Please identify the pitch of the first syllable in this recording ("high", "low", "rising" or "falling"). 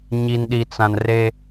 low